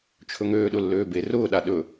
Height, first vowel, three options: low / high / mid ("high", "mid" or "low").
mid